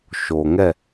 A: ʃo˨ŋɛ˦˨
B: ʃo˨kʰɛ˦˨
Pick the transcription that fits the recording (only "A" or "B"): A